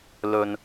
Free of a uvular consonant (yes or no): yes